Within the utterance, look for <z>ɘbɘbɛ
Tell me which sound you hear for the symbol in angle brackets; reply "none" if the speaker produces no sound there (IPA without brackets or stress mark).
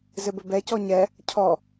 z